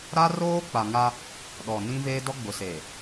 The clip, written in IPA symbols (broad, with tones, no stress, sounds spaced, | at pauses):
ɾ a˦ r oː˦ k͡p a˨ ŋ a˦ | ɗ ɔ˨ n ĩ˦ v eː˦ d ɔ˦ ɡ͡b ʊ˨ s eː˨